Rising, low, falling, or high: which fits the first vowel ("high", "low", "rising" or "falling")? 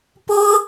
high